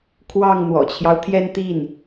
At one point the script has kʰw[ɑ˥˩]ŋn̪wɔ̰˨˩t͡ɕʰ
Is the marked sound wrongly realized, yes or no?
no